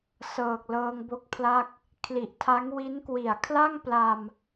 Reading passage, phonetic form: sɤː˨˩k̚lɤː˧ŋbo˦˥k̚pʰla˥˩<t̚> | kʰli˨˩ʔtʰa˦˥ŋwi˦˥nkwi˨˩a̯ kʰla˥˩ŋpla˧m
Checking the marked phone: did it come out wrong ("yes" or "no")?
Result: yes